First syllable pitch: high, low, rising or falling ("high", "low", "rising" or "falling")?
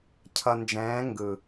low